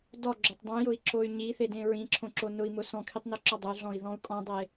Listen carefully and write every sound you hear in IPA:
d ɔ ɡ͡ǁ o tˤ dˤ ĩ j ʊ i̯ ǁ o y̯ ɲ i θ e d ẽ ɹ ĩ ǁʰ õ ǁ o n ʊ i̯ m ʊ s ɔ̃ kʰ i tˤ n o ǁ ɔ dˤ ʊ y̯ ɮ ɔ̃ i̯ ð ɔ̃ u̯ kʼ ɔ̃ dˤ e

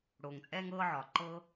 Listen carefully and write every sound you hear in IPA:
ɽ oː˨ ŋ t͡sʼ ɛː˦ ŋ ɤː˦ ʕ ɒː˨ ǃ ɤ˦

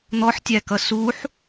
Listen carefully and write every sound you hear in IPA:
n̪ ɔ ħ tʲ æ k ʌ s u ħ

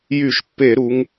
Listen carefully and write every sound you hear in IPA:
j y˧˩˧ ʃ pː e˧˩˧ ɾ u˩˧ ŋ

